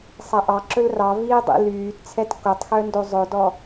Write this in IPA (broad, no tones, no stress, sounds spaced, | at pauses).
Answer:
sˤ æ ʔ ɑ ǁ ɵ l r ɑ v iː dˤ ḭ l yː t t͡sʰ ɛ t k o tˤ x œ n d o zˤ ɵ d ɔ